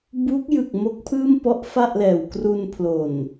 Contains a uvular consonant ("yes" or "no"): no